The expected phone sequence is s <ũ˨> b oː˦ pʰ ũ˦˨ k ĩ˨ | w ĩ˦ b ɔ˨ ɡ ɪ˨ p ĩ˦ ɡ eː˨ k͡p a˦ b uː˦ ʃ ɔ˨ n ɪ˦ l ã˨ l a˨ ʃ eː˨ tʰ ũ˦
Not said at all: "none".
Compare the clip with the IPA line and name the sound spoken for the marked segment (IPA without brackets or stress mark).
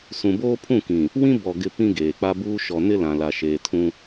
ũ˨